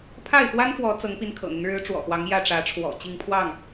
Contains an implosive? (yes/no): no